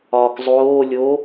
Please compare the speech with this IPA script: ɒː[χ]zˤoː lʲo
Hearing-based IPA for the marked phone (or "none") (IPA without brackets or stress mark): k